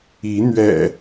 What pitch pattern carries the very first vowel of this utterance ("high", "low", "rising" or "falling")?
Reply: rising